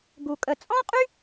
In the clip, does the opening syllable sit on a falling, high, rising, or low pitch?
low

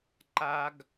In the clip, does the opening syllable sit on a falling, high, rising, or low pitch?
high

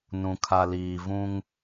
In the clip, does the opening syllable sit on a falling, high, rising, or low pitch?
low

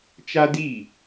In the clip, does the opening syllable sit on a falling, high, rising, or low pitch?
high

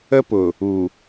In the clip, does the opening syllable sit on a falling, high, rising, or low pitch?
high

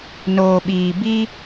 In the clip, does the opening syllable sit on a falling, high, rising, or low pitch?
low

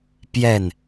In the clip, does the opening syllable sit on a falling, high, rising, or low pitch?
falling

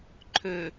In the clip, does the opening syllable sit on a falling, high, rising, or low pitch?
low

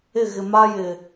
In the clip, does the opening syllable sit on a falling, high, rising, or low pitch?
falling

